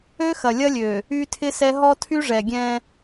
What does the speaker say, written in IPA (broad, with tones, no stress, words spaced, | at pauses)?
ø˦xɐ˨lʲɐ˦lʲø˨ | y˦tʰɪ˦sɛ˦ ɦɔ˦tʰy˦ʐɛ˨ɡʲɛ̃˦